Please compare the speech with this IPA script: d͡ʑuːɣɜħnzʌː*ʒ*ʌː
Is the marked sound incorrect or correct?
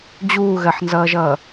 correct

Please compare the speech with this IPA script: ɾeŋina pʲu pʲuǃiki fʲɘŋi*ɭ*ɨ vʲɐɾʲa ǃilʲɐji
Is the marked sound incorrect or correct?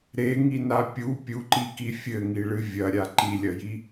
correct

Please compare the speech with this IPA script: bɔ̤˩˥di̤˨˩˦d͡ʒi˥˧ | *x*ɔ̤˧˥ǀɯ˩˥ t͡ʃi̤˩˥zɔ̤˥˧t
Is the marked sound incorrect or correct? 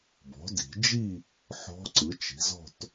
incorrect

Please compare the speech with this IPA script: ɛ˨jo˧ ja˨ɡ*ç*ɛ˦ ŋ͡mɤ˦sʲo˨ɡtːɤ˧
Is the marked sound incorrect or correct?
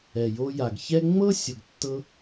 correct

